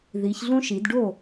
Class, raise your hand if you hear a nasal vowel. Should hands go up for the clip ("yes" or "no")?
yes